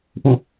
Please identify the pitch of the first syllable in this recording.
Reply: falling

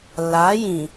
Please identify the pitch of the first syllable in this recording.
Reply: rising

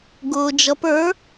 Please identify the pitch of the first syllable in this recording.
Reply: low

